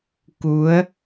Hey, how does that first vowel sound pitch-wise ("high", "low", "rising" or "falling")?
rising